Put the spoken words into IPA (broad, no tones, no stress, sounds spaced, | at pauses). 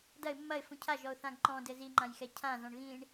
d ɐ ɪ̯ mː ɐ ɪ̯ f ũ cʰ a ʒ ɔ ʊ̯ θ ã ɡ ǃ ɔ̃ d ɘ z i ŋ͡ǃ ã j x ɛ cʰ ã z ɔ̃ ɳ ɣ ĩ ɳ